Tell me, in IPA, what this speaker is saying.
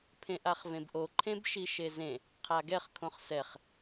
pʰ ẽ ʔ a χ v ẽ b ʔ o ǃʰ ẽ b ʃ i ʃ e z ẽ | qʰ a ɡ ɛ χ kʰ õ χ s ɛ χ

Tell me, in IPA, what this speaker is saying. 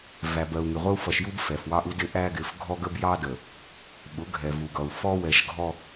v æ˨ b ɜ˨ u̯ ŋ ɪ˨ ʁʷ ə˦ u̯ f ʌ˨ ʃ j u˦ b f ɛ˨ f w ɑ˦ ʔ u˦ d ɪ˦ ʔ æ˦ ɡ ɪ˨˦ f ɡʱ ɔ˦ ɡ ə˦ b j ɑ˦ d ə˨ | ɓ ʊ˨˦ ɡʱ ɛ˨ v u˨ ɡ ʌ˨ u̯ f ɔ˦ w ɛ˨ ʃ ɡʱ ɔ˦

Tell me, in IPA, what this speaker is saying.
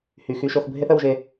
h y˨ x y˦ ʃ o˦ x bʱ e˦ θ ə˧ w ʒ e˧

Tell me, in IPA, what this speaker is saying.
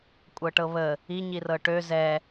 kʷʼ ɤ ʈ ɤ β ə | i ɲ i r ɤ ʈ ø z ɛ

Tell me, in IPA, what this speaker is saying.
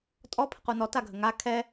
tʼ ɔ pʰ ə q u n ɔ t a ɡʱ ə ŋ a kʰ ɛ

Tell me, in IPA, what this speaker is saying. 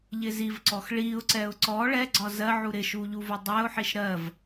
ʎ ɪ z i v ǀ ɔ x ɭ i ʊ̯ ǀ ɛ ʊ̯ ǀ ɔ ɭ ɛ ɡ͡ǀ ɒ z ɜ ʕ u ɾ ɪ ʃ u ʎ u v ʊ dˤ ɛ ʊ̯ ħ i ʃ ɾ ɜ v

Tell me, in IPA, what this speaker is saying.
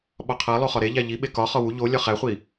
ɓ ɒ qʰ æ lˠ o χ ɒ ɾ e ʎ æ ʎ i ɓ e k ɒ χ ɒ w u ʎ o lʲ ɒ χ æ χʷ i

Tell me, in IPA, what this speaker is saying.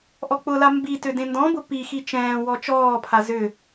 ʔ ɔ k͡p ʊ l a m b i t ø d ẽ n d ɔ̃ b ʊ p i x i t͡ʃ ɛ̃ː w ɔ t͡ʃ ɔː pʰ a z ʏ

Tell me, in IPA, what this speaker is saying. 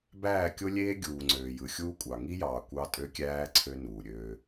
b æː˦˨ kʲ o˦ lʲ eː˦ ɡʲ uː˨ ŋ͡ǀ øː˨ j ɯ˨ xʲ uː˦ kʷʼ ɑ˨ ŋ i˦ j ɑː˨ kʷ ɑ˦ tʼ ø˦ kʲ æː˦ ǀʰ ø˦ n uː˨ ɾʲ øː˦

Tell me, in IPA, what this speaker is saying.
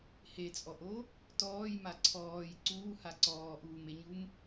h e t͡sʼ ɔ ʔ o | t ɔː j m a ǀʰ ɔː j ǀ uː h a ǀ ɔː ʔ uː m e ɲ u m

